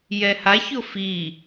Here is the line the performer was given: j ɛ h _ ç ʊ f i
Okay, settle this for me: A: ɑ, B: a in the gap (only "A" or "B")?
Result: B